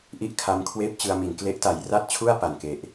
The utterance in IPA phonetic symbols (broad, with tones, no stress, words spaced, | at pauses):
ʔi˥˩ʔkʰa˦˥mkʰweː˥˩p̚ t͡ɕɯ˧a̯mi˩˦n kle˦˥ʔta˩˦j ra˥˩t̚t͡ɕʰu˥˩a̯ pa˨˩nke˨˩ʔ